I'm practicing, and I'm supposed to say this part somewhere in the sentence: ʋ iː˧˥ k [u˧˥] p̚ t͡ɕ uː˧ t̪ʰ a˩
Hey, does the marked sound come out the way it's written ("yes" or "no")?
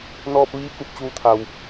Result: yes